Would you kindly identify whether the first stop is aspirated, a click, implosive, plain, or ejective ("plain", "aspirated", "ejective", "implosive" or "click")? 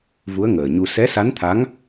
aspirated